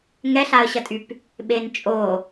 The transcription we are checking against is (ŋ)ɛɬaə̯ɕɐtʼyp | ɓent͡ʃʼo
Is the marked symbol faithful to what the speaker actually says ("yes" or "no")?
yes